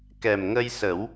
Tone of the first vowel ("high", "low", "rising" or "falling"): low